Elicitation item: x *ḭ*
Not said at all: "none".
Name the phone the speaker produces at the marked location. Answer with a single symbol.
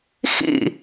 ḭ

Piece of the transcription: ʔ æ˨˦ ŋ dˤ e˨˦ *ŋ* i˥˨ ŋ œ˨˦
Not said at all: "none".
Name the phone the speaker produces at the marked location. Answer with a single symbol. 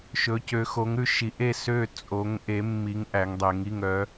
ŋ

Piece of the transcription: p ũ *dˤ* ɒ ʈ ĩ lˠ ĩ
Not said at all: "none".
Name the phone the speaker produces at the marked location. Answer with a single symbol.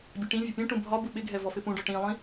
ɖ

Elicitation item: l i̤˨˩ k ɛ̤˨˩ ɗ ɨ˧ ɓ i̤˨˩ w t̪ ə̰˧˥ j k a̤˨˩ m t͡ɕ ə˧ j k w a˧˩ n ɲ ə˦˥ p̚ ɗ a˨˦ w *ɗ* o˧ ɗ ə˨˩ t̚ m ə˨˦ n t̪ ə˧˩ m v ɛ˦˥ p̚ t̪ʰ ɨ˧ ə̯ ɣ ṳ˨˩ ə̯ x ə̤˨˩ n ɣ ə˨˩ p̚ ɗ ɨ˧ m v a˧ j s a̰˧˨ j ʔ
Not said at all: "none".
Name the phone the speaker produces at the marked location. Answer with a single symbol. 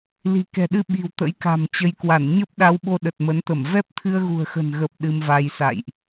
ɓ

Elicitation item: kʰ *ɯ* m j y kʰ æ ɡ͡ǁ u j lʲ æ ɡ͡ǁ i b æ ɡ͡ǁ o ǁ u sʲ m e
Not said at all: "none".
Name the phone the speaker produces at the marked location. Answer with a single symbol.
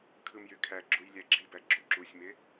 ɯ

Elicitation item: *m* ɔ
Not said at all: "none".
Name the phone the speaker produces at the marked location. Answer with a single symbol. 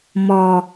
m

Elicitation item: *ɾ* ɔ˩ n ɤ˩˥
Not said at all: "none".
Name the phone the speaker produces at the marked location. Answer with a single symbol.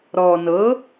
ɾ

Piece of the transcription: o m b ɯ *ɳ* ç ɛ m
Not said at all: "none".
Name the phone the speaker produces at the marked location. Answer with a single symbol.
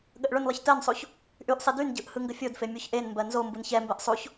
n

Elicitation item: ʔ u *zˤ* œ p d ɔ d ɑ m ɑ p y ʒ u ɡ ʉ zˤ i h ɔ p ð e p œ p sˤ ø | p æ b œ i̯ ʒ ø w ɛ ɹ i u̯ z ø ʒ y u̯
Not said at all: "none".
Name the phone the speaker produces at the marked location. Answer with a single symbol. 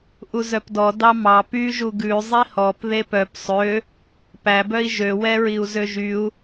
z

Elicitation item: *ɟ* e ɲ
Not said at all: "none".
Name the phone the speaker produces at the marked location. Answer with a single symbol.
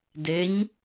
d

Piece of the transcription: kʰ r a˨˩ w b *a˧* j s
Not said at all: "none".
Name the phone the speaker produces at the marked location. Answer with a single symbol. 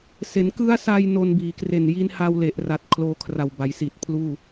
a˩˦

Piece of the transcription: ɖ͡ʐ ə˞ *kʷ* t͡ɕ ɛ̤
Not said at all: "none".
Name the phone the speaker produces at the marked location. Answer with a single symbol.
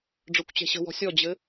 kʷ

